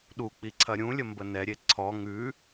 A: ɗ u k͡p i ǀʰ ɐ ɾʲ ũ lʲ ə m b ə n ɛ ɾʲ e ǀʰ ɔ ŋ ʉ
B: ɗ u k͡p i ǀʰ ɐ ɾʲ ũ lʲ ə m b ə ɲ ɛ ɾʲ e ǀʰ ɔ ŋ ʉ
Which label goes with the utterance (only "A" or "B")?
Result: A